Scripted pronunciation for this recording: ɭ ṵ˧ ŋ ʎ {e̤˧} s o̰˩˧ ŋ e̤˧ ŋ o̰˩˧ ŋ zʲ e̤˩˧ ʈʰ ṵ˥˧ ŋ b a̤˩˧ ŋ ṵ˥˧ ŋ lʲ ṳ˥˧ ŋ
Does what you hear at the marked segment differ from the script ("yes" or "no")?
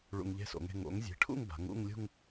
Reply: yes